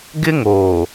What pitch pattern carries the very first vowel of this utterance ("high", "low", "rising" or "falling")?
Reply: high